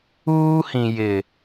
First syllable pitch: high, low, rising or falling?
high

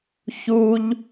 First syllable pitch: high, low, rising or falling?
high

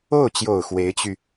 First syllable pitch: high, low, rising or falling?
falling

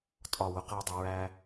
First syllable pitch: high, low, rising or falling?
falling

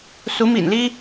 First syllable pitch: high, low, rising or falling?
rising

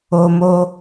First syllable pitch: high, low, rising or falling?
high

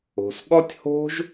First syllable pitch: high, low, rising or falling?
low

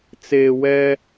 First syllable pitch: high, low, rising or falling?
low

